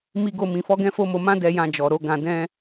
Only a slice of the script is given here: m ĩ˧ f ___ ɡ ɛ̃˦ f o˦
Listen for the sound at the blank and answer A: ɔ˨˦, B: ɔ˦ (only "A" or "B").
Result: B